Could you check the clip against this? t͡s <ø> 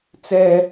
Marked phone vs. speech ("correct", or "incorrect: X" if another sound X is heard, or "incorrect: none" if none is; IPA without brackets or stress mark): incorrect: ɛ